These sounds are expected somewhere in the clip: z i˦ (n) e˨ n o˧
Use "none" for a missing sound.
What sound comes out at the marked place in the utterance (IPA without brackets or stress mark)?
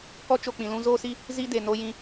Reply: d